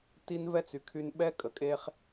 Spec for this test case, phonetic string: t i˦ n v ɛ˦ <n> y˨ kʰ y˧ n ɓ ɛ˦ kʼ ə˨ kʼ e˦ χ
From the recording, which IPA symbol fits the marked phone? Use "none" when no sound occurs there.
t͡s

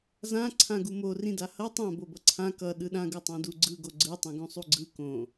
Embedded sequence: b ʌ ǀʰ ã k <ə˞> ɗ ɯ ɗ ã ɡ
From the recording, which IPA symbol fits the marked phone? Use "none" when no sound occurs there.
ʌ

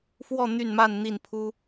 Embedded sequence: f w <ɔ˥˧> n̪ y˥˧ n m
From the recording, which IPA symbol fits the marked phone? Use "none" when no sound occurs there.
ɔ˥˧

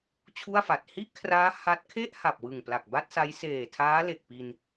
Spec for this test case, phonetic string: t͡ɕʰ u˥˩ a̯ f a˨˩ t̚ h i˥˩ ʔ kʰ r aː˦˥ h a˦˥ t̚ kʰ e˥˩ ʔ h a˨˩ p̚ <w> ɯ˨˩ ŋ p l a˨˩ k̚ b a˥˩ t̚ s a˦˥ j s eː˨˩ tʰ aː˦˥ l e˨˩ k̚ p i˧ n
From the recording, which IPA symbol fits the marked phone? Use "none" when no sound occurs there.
w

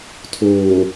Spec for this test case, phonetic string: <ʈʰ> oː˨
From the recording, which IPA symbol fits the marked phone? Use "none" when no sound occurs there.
tʰ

